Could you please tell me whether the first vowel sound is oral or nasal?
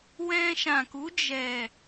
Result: nasal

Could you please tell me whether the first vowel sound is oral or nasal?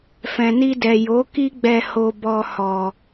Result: nasal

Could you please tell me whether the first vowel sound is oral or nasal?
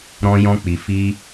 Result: nasal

